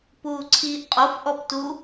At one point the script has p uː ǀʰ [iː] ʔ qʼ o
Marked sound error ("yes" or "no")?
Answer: no